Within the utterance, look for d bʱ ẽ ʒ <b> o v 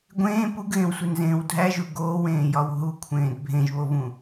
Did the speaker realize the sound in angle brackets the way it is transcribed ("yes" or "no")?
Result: no